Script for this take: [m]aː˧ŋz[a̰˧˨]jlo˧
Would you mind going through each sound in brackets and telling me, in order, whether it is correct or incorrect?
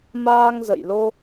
correct, incorrect: ə̰˧˨

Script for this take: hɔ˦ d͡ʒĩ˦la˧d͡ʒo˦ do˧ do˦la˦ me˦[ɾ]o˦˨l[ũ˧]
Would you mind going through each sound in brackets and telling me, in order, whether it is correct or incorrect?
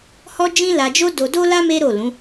correct, incorrect: ũ˨˦

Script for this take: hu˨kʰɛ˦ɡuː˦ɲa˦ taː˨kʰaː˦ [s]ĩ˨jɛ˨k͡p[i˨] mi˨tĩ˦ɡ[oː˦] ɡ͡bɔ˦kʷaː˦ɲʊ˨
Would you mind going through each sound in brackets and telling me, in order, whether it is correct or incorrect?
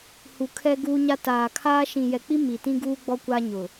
incorrect: ʃ, incorrect: i˦, incorrect: uː˦

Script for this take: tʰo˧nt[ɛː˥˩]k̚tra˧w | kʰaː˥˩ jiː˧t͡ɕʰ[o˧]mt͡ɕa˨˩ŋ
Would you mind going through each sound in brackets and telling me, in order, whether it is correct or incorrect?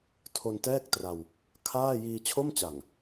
correct, incorrect: o˥˩

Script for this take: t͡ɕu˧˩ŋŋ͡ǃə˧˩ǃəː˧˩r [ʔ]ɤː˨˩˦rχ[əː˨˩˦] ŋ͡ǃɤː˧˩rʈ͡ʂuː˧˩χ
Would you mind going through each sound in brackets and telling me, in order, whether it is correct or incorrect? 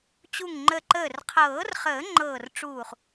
incorrect: qʰ, correct

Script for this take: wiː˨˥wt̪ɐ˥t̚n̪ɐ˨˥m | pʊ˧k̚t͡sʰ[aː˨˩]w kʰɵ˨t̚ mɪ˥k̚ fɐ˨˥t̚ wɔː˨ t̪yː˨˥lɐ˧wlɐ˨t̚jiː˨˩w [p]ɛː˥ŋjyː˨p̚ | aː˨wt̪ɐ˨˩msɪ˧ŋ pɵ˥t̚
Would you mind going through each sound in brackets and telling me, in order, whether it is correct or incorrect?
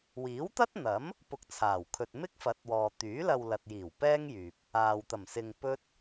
correct, correct

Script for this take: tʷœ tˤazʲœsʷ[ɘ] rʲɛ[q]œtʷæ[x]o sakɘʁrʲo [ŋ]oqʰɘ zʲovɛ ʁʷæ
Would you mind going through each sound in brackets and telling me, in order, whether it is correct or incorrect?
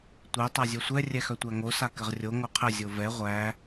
incorrect: ɛ, incorrect: x, incorrect: ŋ, correct

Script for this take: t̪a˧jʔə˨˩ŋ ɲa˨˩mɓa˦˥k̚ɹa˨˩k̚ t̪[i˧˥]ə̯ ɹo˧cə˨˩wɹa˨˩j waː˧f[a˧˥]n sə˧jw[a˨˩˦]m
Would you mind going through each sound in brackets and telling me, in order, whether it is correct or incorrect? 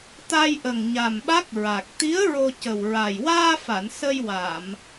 correct, incorrect: a˨˩˨, incorrect: a˨˩˨

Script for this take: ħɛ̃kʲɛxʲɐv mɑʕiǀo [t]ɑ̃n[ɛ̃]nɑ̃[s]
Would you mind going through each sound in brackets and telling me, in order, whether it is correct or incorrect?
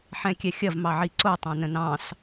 incorrect: tˤ, incorrect: ə̃, correct

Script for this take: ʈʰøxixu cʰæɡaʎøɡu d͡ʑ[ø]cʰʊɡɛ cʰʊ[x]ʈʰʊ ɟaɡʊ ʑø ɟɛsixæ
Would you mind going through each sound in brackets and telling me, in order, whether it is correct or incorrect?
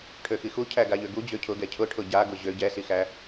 correct, incorrect: none

